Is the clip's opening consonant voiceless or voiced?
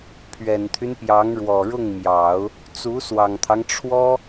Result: voiceless